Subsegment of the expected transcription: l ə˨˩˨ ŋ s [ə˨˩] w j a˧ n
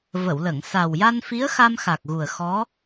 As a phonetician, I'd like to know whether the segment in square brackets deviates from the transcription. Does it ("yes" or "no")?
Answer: yes